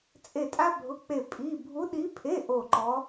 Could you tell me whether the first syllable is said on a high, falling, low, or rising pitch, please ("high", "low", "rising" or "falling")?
falling